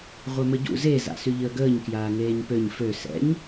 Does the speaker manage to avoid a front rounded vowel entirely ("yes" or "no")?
no